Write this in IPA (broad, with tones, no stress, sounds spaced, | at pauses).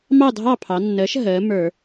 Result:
m ɑ˥˨ dʱ ɑ˥˨ pʰ ɑ˩˧ nː əː˩˥ ʃ ɦ əː˩˧ m ə˞˧˩˧